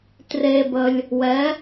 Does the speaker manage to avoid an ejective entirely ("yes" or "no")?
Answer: yes